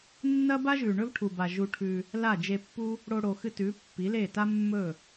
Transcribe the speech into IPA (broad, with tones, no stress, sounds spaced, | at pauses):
nː ɐ˦ b a˦ ʒ ʉ˨ ɳ ɵ˦ v ʈʰ u˨ b a˨ ʒ u˧ ʈʰ ʉ˧ | l a˦˨ d͡ʒ e˧ pː u˦ | ɽ o˧ ɽ o˨ x ɨ˧ t ʉ˨˦ pː i˨˦ l e˦˨ t a˦ mː ɵ˦˨